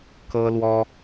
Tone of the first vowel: high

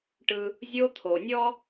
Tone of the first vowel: high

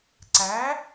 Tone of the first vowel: rising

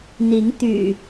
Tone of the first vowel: rising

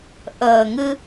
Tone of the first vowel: low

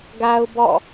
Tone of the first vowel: high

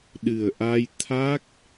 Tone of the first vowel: low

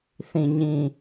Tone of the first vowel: low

